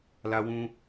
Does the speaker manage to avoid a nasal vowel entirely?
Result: no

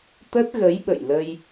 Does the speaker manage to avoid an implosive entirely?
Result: no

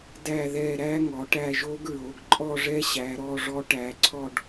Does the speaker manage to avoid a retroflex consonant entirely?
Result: no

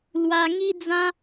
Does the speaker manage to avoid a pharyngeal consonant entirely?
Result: yes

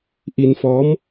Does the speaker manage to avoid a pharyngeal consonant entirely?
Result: yes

